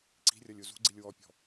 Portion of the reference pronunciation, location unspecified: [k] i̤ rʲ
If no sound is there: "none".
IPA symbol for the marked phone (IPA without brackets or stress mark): ǀ